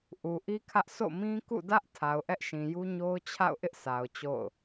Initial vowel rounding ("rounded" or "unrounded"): rounded